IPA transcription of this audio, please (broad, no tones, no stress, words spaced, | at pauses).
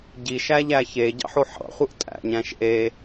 ɟiʃæʎæ çeɟɑ̰ħo ħɑ̰χʷɯʔ tʼæ̰ ɲæ̃ʃʔe